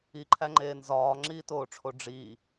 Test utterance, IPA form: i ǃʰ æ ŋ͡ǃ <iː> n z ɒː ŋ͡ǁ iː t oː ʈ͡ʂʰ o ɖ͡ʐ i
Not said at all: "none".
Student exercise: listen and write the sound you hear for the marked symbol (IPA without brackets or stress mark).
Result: eː